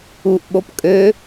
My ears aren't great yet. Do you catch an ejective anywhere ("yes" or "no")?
yes